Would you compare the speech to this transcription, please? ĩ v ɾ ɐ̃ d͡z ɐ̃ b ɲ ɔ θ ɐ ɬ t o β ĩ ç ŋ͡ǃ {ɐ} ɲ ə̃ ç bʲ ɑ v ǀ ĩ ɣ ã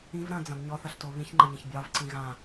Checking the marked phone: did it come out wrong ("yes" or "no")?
yes